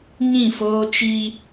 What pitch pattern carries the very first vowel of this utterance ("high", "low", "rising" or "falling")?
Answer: falling